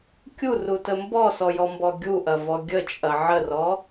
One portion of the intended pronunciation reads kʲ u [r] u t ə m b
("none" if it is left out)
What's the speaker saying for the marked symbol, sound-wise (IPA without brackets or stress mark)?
r